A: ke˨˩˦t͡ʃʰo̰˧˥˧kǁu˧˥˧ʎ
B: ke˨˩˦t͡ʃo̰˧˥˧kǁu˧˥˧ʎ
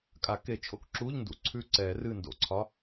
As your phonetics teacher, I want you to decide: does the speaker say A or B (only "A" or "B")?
A